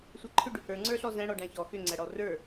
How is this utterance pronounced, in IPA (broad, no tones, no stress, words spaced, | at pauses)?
sʷæǃʰʏ ɖʏhə˞ ŋ͡ǀə˞ɬɔzæ̃ ɽɔɖæ̃çɔ xʏ ŋ͡ǀæɽɔrə˞